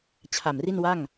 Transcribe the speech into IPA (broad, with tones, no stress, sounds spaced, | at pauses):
t͡ɕʰ a˨˩ m r i˥˩ n w a˥˩ ŋ